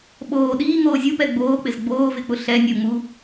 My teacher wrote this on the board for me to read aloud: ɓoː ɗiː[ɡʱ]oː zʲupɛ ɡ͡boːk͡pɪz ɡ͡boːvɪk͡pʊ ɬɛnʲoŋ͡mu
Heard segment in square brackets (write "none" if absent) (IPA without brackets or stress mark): ŋ